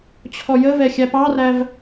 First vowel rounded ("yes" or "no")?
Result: yes